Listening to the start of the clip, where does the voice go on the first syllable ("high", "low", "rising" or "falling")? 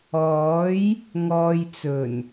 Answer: rising